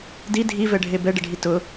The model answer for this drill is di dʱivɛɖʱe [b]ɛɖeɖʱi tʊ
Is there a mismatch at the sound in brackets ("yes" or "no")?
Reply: no